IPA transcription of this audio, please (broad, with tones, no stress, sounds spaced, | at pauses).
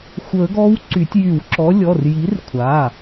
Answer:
xʷ ə˨˩˦ ɡ ɔ˨˥ w ǀ y˨˩˦ tʲ j y˨˩˦ w ǁ ɔ˨˥ lʲ ɔ˩˧˩ r j i˨˥ r kʷʰ a˩˧˩